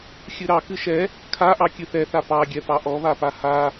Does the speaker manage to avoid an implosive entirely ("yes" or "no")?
yes